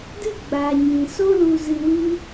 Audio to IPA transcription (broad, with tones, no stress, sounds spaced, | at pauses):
d ɨ˦˨ ɡ͡b a˨ ɲ ĩ˨ s o˦ l u˧ z ɨ˧ w ɨ˦